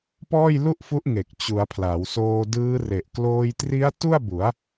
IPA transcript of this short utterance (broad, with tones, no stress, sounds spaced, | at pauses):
p ɔː˥˩ j l u˥˩ ʔ f u˦˥ ʔ ŋ e˨˩ k̚ t͡ɕ u˩˦ a̯ pʰ l a˩˦ w s oː˧ d ɯː˦˥ r e˨˩ ʔ k l oː˧ j t r i˦˥ a̯ t u˥˩ a̯ b u˩˦ a̯